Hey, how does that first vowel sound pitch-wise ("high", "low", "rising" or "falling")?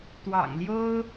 low